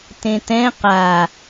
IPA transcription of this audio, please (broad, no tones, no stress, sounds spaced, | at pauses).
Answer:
t ẽ t ɛ̃ q a